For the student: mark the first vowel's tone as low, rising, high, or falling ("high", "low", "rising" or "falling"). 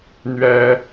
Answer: high